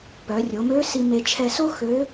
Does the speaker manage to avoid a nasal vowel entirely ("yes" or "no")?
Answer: yes